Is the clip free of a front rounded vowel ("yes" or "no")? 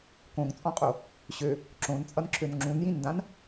no